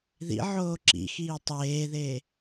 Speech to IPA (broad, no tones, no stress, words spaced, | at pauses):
ðḭʕoː ǁḭxiː tˤeːðe